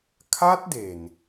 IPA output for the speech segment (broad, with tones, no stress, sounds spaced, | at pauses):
kʰ a˦˥ t̚ d e˨˩ n